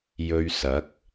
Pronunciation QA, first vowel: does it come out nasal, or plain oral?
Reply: oral